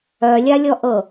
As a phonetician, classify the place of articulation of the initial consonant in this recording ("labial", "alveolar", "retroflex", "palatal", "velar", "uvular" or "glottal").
alveolar